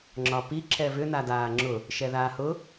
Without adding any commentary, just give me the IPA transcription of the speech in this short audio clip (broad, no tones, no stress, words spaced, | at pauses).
ŋ͡ǁɒpi ǁɛvʏ nadaːŋ͡ǁʊ | ʃɛðaːhʊ